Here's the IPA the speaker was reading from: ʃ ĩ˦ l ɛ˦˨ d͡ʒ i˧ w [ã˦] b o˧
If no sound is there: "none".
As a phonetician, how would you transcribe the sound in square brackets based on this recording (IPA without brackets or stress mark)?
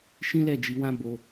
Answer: ã˦